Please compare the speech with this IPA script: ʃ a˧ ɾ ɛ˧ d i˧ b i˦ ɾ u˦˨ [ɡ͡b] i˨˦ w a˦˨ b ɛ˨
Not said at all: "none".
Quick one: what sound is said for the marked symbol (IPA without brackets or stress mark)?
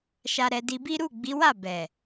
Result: ɡ͡b